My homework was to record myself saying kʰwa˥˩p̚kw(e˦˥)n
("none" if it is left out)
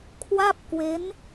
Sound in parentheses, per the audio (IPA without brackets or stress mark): e˦˥